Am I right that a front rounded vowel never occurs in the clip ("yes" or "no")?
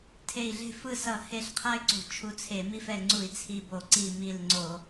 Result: no